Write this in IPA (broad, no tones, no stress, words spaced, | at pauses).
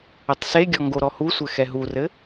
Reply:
ɘtˤseɡʲɔ ŋɡoɾɔhusʷɘ xɛɦurɘ